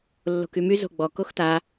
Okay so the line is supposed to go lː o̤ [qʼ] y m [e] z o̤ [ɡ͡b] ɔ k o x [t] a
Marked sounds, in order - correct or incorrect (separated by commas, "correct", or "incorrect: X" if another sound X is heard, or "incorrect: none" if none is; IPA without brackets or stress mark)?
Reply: incorrect: k, incorrect: y, correct, correct